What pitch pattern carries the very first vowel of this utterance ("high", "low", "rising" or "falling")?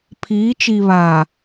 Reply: rising